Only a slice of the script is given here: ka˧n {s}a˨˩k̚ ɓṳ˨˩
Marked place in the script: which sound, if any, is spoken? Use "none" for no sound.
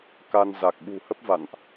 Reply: z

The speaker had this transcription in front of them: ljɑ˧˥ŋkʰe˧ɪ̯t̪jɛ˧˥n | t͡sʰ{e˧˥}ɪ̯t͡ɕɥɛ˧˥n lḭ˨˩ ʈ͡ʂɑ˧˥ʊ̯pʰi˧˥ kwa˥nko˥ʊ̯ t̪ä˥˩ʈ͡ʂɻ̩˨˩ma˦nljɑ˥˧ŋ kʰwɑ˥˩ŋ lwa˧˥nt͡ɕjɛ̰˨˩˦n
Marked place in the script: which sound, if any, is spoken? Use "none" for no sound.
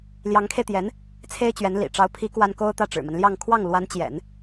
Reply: e˥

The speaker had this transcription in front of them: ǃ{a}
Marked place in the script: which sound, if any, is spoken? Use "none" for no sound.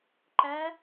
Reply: æ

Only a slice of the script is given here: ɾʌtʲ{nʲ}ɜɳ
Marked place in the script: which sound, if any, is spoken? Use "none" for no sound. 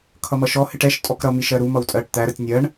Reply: nʲ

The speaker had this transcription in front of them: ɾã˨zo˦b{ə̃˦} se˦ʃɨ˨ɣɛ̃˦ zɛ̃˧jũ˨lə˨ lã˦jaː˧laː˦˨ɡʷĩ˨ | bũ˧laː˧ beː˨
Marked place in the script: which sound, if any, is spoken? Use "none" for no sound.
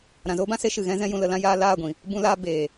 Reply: ã˦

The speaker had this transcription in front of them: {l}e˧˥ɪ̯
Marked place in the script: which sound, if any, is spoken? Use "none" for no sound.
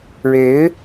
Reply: ɻ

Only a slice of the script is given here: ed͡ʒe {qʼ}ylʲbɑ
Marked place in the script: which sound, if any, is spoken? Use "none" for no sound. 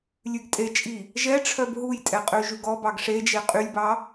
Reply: qʼ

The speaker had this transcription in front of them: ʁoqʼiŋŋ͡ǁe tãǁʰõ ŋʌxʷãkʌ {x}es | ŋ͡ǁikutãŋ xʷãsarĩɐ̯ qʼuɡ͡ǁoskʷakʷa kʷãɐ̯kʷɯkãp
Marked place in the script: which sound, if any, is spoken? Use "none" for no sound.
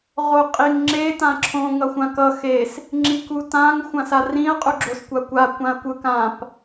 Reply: x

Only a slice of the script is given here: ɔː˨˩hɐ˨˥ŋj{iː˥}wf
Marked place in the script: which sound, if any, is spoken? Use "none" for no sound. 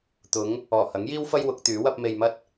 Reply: iː˥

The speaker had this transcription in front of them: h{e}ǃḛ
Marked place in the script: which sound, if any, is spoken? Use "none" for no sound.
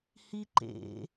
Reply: i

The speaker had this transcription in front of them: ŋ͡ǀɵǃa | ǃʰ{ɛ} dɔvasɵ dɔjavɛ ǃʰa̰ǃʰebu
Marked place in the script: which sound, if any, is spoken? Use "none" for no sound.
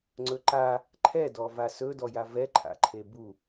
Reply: ɛ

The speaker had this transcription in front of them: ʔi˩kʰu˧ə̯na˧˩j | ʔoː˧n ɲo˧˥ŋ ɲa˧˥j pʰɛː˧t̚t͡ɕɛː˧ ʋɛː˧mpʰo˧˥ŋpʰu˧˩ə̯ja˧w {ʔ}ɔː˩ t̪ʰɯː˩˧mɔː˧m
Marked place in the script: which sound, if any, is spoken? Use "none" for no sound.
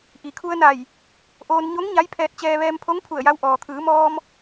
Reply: ʔ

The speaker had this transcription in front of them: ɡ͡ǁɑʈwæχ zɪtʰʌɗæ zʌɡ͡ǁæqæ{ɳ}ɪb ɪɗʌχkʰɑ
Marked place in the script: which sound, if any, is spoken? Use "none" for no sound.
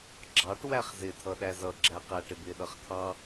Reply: ʈ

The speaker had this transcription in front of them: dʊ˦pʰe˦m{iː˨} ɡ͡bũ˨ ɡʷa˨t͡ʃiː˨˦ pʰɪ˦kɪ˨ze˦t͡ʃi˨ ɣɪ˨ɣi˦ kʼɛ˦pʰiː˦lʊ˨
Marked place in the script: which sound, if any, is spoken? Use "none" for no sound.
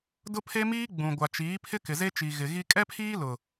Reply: iː˦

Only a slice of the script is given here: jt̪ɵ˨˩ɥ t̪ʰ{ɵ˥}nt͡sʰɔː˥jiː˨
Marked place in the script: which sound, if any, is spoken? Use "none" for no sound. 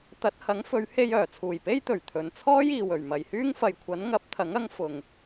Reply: ɵ˨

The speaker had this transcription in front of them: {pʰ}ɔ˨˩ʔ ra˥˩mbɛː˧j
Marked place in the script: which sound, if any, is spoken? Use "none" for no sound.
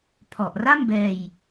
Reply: pʰ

